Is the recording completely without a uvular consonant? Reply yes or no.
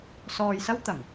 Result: yes